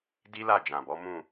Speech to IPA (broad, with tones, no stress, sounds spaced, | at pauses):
d i˦ l a˦˨ d͡ʒ ã˨ b ɔ˨˦ m ũ˦˨